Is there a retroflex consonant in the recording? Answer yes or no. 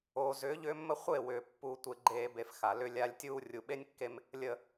no